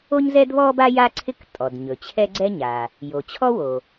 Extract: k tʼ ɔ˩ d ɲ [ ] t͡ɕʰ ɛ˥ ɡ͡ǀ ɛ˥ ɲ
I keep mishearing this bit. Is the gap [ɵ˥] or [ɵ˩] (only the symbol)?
ɵ˩